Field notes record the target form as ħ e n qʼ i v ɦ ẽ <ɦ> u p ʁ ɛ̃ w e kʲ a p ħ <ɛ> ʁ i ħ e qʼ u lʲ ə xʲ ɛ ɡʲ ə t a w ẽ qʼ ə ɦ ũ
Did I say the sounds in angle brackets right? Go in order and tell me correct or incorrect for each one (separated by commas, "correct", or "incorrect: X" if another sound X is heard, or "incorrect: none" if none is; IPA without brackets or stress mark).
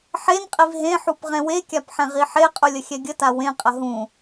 incorrect: ħ, incorrect: ɛ̃